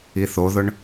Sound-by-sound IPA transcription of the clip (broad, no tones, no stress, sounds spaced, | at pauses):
i θ o ð ʊ ɳ